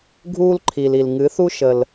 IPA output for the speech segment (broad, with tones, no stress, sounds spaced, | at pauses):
ɡʱ uː˦ l ǃʰ i˨ l i˨ l ŋ ɨ˨˦ θ u˦ ʃ ə˦ l